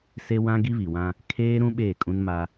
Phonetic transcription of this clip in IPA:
se˦wã˦ ɡi˦βi˨wã˦ | kʰeː˦ ɾũ˦ ɓeː˦˨kʼũ˦nma˦

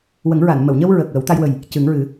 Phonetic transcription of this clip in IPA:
wə˨˩˦ŋɹa˨˩˨n mə˨˩˨wɲə˧w ɹə˨˩k̚ wə˨˩˦wt̪a˧jwə˨˩j | cɨ˨˩˦ŋɹɨ˨˩˦

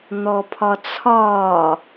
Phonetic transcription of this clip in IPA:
n̪ɔpʰɒt͡sʰɒː

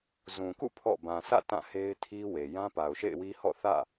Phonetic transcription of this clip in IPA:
zũ˨kṵ˦˨ pʰɔ̰˦˨ bã˨sʰä̰˦˨ tã˦˨he˦ɪ̯tʰi˦we˨ jã˦pa˨ʊ̯ʃḛ˦˨ɪ̯wi˦ hɔ̰˦˨θä̰˦˨

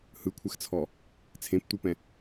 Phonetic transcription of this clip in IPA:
hɯkʷʰɛxt͡sʰɔ | t͡sʰẽptʷɤpɛ̃

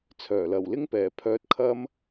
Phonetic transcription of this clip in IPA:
t͡sʰœː˨˩lɐ˨˩wlɪ˧ŋpɛː˨˩ pʰœː˧t̚kʰɐ˥m

